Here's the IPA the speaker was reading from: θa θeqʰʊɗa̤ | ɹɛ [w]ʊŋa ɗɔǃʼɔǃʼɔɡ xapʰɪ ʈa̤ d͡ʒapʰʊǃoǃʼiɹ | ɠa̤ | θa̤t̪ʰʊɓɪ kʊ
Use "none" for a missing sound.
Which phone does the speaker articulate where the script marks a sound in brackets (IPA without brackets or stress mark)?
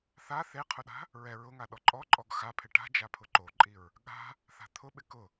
ɹ